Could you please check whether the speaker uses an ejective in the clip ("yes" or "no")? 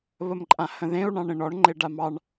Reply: yes